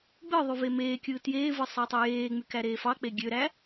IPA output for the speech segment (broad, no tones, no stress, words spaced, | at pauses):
ɡ͡bɯðˤy vemeːkʲɯː tjeːvɯ sˤætˤujeːŋ͡my kæɾeːfɑk͡pe ɡʲøɾæ